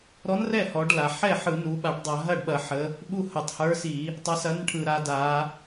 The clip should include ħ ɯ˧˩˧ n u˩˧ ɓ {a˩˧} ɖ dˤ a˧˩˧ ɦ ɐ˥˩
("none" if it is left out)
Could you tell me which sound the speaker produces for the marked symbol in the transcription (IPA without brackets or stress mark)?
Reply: a˧˩˧